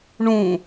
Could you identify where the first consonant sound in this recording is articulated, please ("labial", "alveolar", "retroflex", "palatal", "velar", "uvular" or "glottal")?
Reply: retroflex